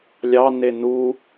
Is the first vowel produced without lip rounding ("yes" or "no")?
yes